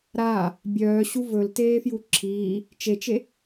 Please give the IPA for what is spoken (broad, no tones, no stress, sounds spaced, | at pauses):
ɾ aː | bʲ œː ɕ u v ɵ l t eː f j u ǁʰ iː | t͡ʃ e t͡ʃ e